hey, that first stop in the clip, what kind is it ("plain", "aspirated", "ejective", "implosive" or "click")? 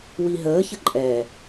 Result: click